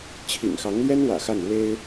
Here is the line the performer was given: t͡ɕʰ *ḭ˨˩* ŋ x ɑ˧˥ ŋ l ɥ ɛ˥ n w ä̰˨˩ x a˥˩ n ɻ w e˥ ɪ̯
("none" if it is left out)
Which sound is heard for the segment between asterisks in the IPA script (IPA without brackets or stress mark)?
ḭ˨˩